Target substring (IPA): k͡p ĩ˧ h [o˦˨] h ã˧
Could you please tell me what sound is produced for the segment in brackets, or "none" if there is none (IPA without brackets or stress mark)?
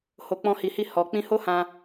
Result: o˦